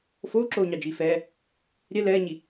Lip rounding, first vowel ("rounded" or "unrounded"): rounded